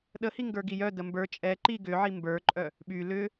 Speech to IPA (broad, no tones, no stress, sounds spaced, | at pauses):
ɗ ə h i ŋ ɡ ə˞ ɡ i j œ d ə m b ə˞ t͡ʃʼ ɛ ǃ i ɡ ʏ ʕ i m b ə˞ ǃʼ œ | ɓ y l ʏ